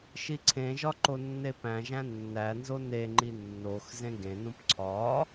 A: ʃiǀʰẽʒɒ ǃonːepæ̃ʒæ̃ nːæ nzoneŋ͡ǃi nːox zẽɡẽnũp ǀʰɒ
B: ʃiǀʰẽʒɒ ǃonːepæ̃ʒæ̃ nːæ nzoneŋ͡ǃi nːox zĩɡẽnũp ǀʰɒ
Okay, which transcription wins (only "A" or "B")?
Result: A